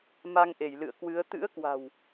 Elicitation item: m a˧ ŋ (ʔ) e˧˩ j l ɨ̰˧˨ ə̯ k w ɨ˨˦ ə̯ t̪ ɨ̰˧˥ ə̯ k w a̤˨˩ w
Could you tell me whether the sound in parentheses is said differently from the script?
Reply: no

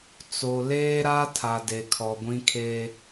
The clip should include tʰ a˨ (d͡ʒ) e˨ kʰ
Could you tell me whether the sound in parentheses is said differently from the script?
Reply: yes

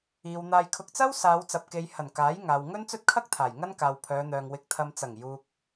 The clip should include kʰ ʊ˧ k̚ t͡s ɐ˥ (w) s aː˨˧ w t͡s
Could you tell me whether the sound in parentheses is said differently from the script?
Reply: no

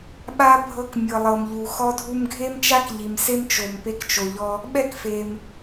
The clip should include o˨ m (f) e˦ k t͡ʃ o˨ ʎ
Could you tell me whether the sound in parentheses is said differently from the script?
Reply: yes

